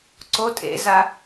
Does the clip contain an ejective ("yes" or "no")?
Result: yes